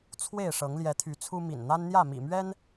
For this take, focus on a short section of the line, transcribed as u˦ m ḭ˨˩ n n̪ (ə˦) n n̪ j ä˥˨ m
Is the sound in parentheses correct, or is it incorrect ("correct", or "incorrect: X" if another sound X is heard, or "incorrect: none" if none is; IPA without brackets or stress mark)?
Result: incorrect: a˦